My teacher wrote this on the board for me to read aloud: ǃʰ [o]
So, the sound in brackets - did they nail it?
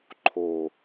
yes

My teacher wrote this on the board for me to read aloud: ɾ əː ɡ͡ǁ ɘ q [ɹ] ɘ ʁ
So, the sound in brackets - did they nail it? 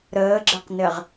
no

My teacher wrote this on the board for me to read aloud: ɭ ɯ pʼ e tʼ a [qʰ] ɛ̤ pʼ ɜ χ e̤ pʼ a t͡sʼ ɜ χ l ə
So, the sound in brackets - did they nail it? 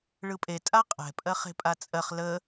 no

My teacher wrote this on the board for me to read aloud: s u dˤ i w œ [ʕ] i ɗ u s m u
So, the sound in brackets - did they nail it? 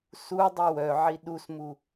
yes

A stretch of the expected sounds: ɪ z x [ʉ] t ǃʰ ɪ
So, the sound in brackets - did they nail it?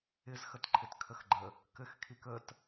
no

